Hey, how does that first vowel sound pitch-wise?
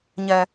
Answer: low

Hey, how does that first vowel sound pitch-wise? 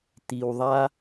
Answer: low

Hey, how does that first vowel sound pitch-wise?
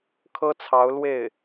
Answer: high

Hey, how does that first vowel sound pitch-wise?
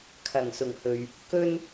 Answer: low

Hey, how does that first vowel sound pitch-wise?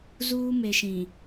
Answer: high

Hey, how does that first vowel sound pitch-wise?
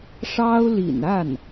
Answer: high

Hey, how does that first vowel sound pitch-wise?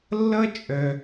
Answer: high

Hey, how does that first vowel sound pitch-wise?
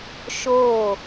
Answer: falling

